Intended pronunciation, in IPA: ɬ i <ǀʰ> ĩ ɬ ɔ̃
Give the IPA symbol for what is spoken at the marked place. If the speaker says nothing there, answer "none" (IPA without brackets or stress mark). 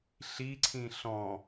ǀʰ